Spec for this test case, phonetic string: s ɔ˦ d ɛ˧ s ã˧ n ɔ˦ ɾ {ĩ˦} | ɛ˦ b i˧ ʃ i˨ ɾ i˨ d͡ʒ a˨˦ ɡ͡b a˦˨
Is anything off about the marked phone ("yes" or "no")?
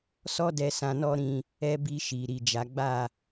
yes